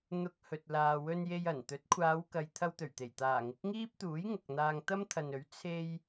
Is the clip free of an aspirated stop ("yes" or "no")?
no